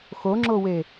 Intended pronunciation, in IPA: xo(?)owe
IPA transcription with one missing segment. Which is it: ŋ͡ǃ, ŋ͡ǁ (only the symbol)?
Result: ŋ͡ǁ